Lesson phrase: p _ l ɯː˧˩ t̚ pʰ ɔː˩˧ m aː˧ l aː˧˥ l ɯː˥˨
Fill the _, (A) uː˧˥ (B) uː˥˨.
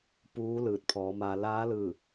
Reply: A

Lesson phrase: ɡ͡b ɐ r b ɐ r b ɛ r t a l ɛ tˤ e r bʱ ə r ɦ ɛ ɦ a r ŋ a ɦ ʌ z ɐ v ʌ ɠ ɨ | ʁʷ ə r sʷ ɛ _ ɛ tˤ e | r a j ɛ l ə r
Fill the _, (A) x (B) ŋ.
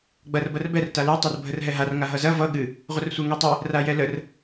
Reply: B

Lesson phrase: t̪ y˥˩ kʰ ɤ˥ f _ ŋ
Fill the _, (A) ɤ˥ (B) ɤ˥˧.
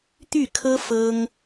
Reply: A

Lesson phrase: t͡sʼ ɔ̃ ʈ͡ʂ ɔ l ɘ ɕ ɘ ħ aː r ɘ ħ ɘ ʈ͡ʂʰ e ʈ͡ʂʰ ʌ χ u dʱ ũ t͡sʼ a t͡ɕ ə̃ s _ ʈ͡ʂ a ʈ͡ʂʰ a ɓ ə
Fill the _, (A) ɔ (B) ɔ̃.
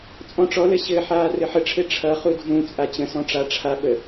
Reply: B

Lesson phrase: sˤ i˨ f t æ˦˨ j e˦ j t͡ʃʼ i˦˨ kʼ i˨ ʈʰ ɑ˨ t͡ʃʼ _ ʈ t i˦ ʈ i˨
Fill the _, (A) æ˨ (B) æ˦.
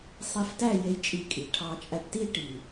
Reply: A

